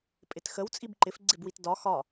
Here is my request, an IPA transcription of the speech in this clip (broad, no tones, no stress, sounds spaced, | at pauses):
pʼ ɪ t x ə w t͡sʼ i b ǃ ɪ f ɡ͡ǀ ɪ b w i t d ɒ x ɒ